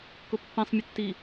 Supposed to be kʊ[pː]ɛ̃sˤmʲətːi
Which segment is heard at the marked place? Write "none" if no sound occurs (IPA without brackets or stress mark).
pː